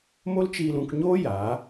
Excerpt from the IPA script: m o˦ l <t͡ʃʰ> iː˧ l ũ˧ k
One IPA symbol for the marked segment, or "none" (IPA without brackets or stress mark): t͡ʃ